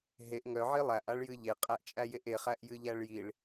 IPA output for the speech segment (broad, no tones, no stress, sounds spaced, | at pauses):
ɦ e ʔ ŋ œ ʕ i lˠ æ ʔ a ɭ j ɨ ʎ e qʼ æ ʔ t͡ʃʼ æ j e ʔ e χ æ ʔ j ɨ ʎ æ ɭ j i ɭ